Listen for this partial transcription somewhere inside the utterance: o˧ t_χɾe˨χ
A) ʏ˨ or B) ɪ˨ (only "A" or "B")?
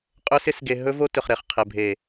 A